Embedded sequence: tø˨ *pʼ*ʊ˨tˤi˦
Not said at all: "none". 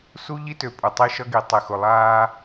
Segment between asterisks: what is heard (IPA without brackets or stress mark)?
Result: pʼ